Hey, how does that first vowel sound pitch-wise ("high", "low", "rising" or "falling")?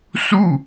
falling